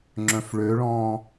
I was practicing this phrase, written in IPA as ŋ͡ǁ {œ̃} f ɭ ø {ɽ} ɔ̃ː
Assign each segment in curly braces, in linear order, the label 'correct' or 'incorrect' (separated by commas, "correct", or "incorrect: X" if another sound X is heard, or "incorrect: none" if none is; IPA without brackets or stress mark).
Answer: correct, incorrect: ɭ